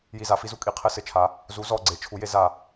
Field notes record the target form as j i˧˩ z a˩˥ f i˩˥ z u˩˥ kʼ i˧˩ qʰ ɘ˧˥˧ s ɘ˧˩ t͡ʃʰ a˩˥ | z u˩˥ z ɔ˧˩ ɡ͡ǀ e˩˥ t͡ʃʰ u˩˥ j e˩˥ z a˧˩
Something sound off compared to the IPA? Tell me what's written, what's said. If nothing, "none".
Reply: none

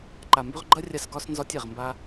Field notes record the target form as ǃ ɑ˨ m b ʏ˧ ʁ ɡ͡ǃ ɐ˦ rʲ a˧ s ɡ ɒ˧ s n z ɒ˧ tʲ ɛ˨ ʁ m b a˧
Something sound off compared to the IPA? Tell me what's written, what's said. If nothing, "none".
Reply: ɑ˨ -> a˨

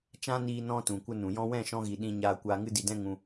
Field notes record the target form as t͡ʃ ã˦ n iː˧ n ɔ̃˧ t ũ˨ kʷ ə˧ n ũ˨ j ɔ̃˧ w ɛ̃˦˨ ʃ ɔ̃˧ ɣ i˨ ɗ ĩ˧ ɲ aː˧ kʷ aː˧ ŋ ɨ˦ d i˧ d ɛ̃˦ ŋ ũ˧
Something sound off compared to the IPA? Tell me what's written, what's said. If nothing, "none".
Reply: none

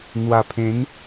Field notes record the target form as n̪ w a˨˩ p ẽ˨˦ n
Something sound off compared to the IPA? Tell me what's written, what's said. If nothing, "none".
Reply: p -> pʰ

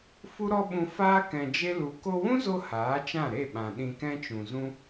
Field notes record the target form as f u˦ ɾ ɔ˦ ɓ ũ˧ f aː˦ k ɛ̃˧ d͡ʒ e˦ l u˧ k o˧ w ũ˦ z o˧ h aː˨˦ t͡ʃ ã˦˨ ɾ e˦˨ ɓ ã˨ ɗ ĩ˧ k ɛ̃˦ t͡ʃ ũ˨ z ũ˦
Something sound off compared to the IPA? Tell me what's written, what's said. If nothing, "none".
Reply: none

